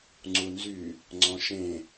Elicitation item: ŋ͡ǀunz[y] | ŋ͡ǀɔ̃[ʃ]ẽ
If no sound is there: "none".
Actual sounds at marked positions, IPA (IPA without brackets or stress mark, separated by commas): y, ʃ